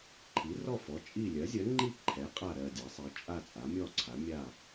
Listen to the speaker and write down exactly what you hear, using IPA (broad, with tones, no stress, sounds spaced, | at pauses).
ǃʰ i˩˥ r ɔ˥˨ f ɔ˩˥ t͡ʃʼ i˥˨ lʲ ɜ˩˥ zʲ ɜ˩˥ ŋ͡ǃ i˥˨ ǃʰ ɛ˩˥ qʼ a˥˨ ɾ ɜ˥˨ dʲ a˩˥ sˤ ɛ˩˥ t͡ʃʼ a˥˨ t͡sʼ a˩˥ mʲ ɔ˥˨ ǀʰ a˩˥ mʲ a˥˨